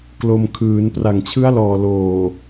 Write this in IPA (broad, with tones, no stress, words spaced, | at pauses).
klo˧m kʰɯː˩˦n pra˨˩ŋt͡ɕʰɯ˦˥a̯lɔː˨˩ loː˨˩